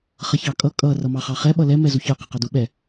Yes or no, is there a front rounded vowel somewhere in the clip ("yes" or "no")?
no